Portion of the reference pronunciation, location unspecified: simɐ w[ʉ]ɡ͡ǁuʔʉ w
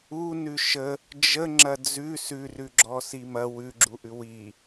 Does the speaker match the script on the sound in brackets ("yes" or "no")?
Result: yes